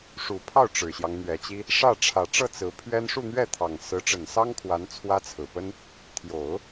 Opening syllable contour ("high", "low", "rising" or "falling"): low